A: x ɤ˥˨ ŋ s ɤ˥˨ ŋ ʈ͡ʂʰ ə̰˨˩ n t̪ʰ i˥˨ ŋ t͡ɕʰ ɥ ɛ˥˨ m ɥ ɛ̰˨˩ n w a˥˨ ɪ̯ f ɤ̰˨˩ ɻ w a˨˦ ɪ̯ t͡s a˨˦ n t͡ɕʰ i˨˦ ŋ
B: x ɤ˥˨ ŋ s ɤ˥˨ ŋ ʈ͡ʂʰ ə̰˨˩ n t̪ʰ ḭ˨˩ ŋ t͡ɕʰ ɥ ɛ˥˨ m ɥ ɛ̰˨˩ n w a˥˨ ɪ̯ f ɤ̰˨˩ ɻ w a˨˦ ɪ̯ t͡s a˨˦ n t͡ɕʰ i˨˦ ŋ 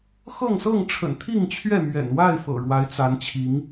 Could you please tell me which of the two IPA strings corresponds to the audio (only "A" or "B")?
A